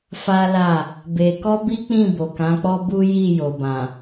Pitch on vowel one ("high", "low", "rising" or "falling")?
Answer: high